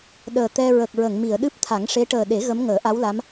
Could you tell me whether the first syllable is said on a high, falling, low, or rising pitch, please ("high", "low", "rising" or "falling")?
low